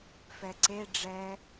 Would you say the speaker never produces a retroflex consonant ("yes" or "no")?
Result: no